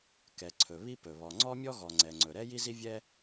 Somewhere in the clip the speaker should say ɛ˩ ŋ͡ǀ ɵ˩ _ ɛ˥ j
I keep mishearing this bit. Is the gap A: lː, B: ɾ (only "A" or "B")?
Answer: B